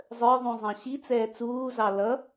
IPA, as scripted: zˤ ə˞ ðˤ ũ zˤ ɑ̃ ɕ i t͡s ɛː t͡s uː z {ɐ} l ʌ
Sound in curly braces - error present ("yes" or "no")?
yes